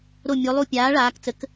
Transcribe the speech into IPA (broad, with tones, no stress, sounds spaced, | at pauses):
ɾ o˧˩ mʲ o˩˧ lˠ u˧˩ pʲ aː˩˥ ɭ aː˩˧ k t͡s ə˩˥ k